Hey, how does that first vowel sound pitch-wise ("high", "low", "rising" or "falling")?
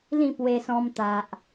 falling